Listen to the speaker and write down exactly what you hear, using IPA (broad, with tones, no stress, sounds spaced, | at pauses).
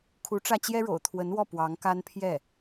kʰ u˧˥ ʈ͡ʂ ä˥˩ t͡ɕ j ɛ˥ ɻ o̰˨˩ ʊ̯ t̪ʰ w ə˧˥ n w ɔ˥˩ p w ɑ˧˥ ŋ k a˥ n pʰ j ɛ˥˩